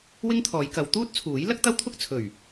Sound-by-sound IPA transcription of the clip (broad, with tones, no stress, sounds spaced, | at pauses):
w ɪ˥ ŋ t̪ʰ ɔː˨˧ j k ɐ˨˧ w t̪ uː˥ t̚ t͡sʰ uː˨˥ j l ɐ˥ k̚ t̪ ɐ˥ w t̪ʰ ʊ˥ k̚ t͡sʰ ɵ˨˩ ɥ